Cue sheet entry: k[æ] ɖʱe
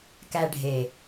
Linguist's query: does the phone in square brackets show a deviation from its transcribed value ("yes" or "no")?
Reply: no